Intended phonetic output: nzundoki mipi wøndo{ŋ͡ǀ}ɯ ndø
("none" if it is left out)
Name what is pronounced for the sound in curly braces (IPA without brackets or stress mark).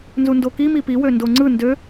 ŋ͡ǀ